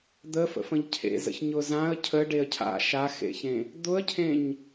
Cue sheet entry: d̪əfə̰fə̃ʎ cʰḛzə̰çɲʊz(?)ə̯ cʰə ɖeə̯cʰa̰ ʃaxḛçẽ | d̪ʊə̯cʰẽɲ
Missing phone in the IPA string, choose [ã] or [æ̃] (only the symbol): ã